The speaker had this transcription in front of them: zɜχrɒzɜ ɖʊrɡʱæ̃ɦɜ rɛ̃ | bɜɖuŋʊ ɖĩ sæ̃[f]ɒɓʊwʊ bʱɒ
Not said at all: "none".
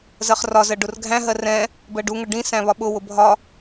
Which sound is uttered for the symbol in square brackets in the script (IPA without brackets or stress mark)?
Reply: β